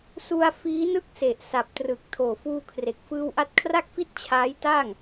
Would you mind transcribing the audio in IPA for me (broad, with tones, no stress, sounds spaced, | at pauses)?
s u˧ a̯ f iː˦˥ n ɯ˥˩ k̚ s e˨˩ ʔ s a˨˩ p̚ t r ɯ˨˩ k̚ tʰ oː˨˩ f uː˧ kʰ r e˨˩ k̚ f ɯː˧ w ʔ a˦˥ t̚ kʰ r a˥˩ k̚ f i˥˩ t̚ t͡ɕʰ aː˦˥ j t aː˥˩ ŋ